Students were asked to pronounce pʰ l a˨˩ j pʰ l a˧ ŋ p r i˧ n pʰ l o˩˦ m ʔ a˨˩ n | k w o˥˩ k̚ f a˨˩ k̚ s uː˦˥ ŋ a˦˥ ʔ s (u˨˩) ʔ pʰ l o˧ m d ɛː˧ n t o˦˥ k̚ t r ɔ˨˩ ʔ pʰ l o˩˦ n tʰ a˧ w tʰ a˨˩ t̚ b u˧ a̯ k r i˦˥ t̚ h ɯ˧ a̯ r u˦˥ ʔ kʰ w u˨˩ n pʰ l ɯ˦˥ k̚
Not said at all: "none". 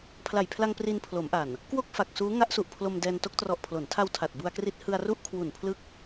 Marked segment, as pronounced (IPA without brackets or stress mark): u˨˩